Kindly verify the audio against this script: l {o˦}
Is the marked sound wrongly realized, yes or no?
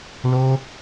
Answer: no